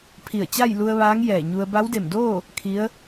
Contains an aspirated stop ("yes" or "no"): yes